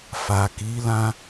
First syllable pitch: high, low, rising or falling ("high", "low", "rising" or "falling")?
low